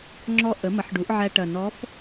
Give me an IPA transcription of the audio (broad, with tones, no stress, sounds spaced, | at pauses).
ŋ͡ǁ ɔ˥ ʔ ə˩˥ m ɐ˩˥ ħ ɖ u˩˥ ʔ ʕ æ˧ ʈ ɐ˨˩ n ɔ˧˥ f